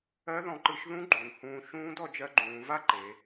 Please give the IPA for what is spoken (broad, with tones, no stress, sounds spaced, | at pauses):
ɜ˦˥ ð ɔ̃˧ ǃ ɯ˧ ʃ ð ũ˦˥ ɡ͡ǃ u˩˧ n h ũː˧ ʃ ũː˦˥ d ɔ˧ d͡ʒ ɜ˧ ɡ͡ǃ ũː˩˧ v a˦˥ ǃ e˩˧